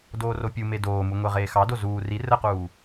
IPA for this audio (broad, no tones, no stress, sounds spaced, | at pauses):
d oː r o pʲ u m e d oː m u ŋʷ e ʁ eː x ɑ d o z uː r i r ə q uː